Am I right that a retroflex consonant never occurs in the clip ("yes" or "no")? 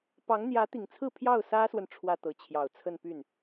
no